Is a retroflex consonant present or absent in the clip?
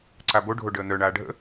present